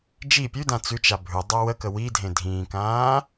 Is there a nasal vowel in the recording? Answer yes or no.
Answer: yes